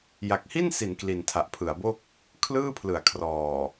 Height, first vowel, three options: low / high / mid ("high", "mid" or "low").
low